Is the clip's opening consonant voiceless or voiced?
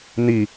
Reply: voiced